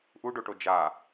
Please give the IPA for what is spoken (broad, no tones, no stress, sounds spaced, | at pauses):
ʔ u ɖ o ʈ o d͡ʒ a